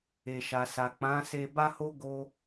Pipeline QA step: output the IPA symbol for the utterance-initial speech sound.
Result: e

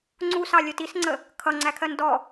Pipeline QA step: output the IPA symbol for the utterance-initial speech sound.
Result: ŋ͡ǀ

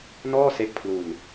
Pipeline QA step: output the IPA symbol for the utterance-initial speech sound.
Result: n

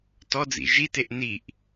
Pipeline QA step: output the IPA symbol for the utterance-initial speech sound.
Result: t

